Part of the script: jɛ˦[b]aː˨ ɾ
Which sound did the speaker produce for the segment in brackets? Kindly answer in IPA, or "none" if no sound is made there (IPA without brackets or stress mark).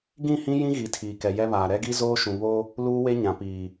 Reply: β